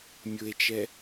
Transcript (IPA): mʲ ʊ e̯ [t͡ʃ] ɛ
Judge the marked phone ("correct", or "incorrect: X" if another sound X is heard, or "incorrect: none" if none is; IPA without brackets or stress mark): correct